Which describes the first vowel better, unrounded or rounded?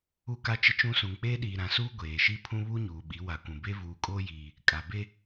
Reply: rounded